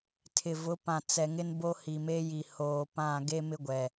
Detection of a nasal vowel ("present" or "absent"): present